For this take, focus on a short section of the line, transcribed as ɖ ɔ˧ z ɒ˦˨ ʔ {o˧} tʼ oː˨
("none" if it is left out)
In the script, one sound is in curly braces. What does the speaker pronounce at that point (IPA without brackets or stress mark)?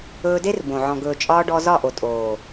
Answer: o˨